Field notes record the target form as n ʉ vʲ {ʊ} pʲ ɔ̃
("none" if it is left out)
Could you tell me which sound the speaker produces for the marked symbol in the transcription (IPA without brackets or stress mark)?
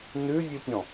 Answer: u